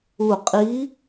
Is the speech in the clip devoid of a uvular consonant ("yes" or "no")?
no